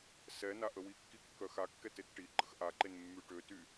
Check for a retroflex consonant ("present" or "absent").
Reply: present